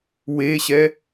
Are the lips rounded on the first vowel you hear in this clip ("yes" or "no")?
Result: no